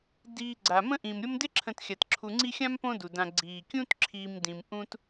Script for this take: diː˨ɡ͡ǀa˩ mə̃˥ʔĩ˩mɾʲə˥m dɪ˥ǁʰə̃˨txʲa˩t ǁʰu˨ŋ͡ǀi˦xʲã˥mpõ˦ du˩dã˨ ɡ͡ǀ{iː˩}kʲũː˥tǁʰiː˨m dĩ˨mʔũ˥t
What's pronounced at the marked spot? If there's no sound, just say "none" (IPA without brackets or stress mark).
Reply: iː˩